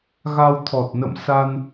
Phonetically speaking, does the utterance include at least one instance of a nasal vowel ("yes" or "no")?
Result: no